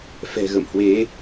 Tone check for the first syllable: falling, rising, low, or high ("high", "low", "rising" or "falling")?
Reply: low